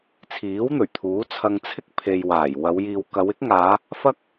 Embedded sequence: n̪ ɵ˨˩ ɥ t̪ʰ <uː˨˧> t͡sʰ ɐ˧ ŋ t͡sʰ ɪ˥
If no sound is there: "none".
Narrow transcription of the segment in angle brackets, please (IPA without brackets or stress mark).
uː˨˥